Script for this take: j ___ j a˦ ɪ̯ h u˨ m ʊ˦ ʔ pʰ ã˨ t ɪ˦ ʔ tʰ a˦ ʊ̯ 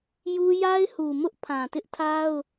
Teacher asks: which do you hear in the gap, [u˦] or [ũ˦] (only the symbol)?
u˦